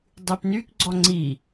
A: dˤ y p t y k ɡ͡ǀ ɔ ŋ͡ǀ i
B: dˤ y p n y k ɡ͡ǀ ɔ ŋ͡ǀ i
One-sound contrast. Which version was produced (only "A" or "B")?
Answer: B